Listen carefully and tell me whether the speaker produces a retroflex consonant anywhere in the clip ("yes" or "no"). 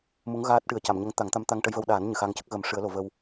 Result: yes